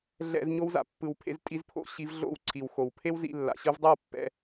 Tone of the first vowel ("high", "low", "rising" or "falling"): low